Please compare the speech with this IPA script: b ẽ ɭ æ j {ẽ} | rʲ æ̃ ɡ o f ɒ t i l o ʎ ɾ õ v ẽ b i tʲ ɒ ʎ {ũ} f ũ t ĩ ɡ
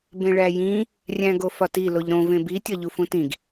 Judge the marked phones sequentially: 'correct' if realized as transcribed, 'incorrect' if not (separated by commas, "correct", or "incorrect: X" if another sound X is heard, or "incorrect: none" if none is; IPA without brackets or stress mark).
incorrect: ĩ, incorrect: u